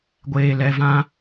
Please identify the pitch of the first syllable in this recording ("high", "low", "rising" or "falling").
low